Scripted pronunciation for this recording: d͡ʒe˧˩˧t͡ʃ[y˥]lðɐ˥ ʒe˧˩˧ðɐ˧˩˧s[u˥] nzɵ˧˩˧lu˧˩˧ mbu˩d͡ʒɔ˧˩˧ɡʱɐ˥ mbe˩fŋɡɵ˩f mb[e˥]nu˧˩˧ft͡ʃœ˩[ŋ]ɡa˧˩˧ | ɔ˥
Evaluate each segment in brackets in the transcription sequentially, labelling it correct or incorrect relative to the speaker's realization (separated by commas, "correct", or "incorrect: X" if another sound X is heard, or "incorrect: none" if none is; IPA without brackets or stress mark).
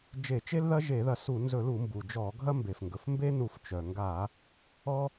incorrect: e˥, incorrect: u˧˩˧, correct, correct